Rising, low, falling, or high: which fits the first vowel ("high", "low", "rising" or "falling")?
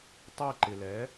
falling